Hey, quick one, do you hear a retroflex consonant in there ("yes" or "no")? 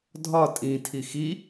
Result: no